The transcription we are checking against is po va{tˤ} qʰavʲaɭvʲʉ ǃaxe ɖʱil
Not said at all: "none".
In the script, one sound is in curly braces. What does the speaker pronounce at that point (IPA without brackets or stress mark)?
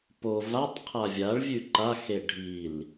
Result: tˤ